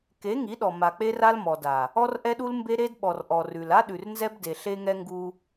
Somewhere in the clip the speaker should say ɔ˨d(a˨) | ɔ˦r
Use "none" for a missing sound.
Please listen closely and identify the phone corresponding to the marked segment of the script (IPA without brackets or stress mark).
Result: a˨